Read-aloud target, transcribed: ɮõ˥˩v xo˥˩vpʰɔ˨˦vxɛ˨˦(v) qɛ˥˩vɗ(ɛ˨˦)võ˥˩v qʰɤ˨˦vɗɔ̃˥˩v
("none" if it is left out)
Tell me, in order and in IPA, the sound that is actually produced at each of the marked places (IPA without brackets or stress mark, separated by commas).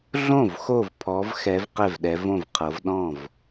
v, ɛ˨˦